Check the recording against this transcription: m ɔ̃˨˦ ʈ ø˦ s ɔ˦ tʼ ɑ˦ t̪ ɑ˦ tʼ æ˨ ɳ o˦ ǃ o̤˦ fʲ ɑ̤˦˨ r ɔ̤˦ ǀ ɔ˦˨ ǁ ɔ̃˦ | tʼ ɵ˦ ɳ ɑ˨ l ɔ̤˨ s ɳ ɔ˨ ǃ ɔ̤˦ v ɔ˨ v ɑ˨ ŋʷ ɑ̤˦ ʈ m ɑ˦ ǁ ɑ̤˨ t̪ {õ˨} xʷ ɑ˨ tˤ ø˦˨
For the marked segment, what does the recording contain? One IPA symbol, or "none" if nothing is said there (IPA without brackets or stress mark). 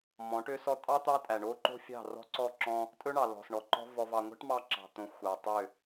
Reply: õ˨